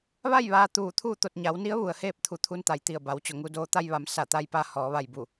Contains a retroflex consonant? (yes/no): no